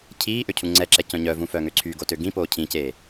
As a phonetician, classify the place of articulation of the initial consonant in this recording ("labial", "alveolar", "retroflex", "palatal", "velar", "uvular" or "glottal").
palatal